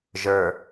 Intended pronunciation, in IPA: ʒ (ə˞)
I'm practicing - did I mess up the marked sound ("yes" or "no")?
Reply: no